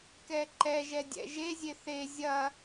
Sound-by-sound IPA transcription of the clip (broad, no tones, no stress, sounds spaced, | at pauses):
k ɛ ǃ ɛ ʒ ɛ dʲ ɛ̰ ʒ e zʲ e θ e zʲ ɐ